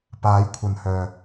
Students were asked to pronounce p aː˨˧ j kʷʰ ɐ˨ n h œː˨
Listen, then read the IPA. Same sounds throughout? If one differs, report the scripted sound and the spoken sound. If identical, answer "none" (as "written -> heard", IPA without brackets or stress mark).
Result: none